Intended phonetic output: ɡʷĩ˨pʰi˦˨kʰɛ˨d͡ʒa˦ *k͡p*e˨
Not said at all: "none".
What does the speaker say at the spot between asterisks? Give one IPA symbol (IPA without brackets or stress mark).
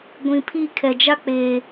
k͡p